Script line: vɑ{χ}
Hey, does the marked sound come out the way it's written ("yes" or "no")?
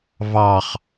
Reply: yes